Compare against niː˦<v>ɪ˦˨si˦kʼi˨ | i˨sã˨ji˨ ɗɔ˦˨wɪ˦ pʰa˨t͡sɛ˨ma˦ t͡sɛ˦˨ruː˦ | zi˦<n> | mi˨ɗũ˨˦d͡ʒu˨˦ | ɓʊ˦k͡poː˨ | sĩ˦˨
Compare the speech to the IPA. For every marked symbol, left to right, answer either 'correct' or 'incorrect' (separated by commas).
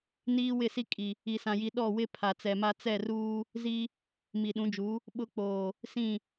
incorrect, incorrect